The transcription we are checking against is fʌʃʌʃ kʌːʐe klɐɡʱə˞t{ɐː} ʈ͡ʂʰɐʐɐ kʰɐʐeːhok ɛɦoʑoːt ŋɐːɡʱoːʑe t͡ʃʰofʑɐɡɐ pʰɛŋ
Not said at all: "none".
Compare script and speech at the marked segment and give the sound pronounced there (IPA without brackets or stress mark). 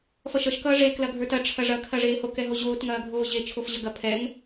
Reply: ɐ